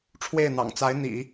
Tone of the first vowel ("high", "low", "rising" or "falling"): falling